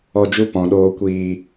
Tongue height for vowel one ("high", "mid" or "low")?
mid